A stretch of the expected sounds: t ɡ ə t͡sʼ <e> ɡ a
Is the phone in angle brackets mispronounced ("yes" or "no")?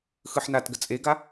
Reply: no